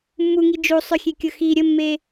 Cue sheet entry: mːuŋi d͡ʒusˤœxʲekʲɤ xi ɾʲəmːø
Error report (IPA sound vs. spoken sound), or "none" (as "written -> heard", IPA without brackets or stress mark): ø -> e